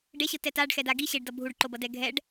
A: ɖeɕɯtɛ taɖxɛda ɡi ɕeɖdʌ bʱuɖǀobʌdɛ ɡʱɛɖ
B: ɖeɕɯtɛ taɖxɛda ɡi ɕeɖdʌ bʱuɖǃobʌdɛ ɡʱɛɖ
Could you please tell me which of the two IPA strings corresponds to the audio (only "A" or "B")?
B